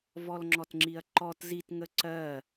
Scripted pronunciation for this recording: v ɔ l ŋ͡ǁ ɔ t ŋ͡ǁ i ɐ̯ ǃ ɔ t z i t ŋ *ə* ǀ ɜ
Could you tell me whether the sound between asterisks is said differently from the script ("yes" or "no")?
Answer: no